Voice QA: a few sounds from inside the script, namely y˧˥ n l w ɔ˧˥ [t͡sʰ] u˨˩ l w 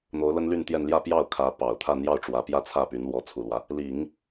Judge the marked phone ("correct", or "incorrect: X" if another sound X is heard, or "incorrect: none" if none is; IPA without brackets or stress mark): correct